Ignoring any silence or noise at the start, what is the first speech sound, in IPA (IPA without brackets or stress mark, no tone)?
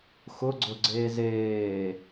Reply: x